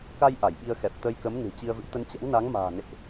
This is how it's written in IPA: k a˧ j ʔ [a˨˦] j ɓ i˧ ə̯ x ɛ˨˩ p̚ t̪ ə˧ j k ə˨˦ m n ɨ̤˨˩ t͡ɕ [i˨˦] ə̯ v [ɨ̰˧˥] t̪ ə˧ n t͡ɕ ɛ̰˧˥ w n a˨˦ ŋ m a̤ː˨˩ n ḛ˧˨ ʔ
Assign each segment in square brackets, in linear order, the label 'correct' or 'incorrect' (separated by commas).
incorrect, incorrect, correct